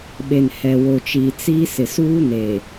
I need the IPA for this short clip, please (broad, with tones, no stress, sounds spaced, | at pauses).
ɓ e˨ n h ɛ˨ w o˨ t͡ʃ iː˨ t͡s i˦ s ɪ˨ s uː˦ n e˨